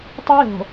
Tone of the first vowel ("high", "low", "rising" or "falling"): high